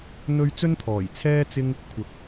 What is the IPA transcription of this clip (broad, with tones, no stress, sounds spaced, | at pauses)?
n̪ ɵ˧ ɥ t͡s ɵ˥ n t̪ʰ ɔː˨˩ j t͡sʰ ɛː˥ t͡s ɪ˥ ŋ | kʷʰ ɐ˨˥ k̚